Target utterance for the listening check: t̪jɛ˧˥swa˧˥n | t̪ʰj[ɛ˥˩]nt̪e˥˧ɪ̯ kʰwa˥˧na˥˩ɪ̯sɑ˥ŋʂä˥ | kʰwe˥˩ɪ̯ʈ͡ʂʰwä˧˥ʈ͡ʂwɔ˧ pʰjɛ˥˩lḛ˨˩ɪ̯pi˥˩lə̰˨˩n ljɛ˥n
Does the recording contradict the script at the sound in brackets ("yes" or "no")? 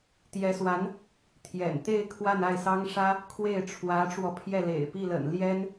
yes